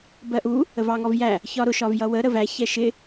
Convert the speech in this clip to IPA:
b ɜ ʔ u | ə v ɑ ŋ ɔ v j æ | ç ɒ ɾ ʊ ʃ ɒ v j ʌ w ə ɾ ə v æ ç ɛ ʃ ɪ

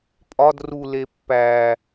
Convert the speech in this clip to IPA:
pʼ ɒ d r u l e pː æ

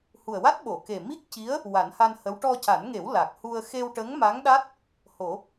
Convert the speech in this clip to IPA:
h u˨˩ ə̯ w a˦˥ t̚ ɓ o˨˩˨ k e˨˩ m i˦˥ k̚ c i˧˥ ə̯ | w a˨˩˦ n h a˧ n h ə˧˥ w ʈ ɔ˧ c a˨˩˦ n ŋ e˨˩˦ w l a˨˩ k̚ h u˧ ə̯ x e˧ w ʈ ə˧˥ ŋ m a˧˥ ŋ ɗ a˦˥ t̚ | h o˨˩˦

